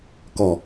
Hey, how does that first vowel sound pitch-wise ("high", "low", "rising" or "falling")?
low